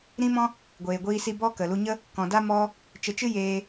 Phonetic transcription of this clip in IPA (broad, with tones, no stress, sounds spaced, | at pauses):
ɾ ĩ˦ m ɔ̃˦ | ɡʷ eː˨ ɡʷ iː˧ s i˧ b ɔ˦ k ə˨ l u˧ ɲ ə˦ | k ɔ̃˨ d a˧ m ɔ˧ | t͡ʃ ə˨˦ t͡ʃ ɨ˦ j eː˧